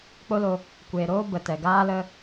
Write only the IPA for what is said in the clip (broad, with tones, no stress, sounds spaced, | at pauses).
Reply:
k͡p o˦ l o˧ | kʷ eː˧ ɾ oː˦ b ə˨ t ɛ˨ ɡ aː˦ l ə˦